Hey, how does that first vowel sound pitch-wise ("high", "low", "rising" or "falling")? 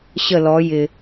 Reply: falling